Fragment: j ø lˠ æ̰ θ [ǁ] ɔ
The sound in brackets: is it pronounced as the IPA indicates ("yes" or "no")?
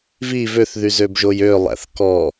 no